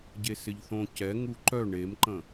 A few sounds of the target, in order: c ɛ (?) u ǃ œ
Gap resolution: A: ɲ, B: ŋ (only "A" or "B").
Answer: B